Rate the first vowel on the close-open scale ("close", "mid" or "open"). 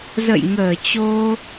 mid